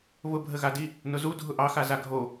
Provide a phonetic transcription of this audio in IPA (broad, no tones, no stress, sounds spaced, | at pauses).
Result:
β ʊ bʱ ə ɣ a d i | n ʊ z u dʱ ʊ ʔ ɑ x a z a ɡʱ o